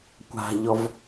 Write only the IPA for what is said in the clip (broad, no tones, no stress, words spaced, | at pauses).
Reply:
kʷa̤ʎɔv